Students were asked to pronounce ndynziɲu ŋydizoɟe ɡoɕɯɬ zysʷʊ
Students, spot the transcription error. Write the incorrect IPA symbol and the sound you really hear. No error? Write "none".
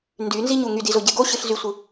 ʊ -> ɯ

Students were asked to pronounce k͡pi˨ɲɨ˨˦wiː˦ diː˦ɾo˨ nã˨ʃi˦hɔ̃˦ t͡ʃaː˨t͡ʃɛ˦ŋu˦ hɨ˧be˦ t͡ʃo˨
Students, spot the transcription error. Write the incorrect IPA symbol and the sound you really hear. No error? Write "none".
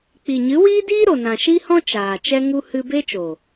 none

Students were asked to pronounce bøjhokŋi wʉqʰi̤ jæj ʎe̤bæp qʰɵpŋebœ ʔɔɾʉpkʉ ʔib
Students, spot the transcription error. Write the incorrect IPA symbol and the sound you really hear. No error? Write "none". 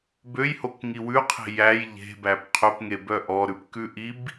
none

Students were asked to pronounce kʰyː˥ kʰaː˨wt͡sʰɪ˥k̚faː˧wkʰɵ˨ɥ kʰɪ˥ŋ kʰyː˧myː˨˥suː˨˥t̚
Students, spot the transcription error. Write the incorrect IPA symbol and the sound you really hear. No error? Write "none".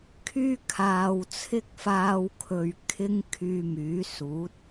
none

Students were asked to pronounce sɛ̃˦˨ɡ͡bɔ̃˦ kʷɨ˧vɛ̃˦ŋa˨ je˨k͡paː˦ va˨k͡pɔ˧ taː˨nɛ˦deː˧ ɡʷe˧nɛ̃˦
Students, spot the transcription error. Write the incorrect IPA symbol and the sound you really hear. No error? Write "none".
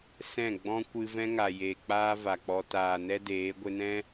eː˧ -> eː˨˦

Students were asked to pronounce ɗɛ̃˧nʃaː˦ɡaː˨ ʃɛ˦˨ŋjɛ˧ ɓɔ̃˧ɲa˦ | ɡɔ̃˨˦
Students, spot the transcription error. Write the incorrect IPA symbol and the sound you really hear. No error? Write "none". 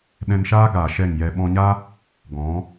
none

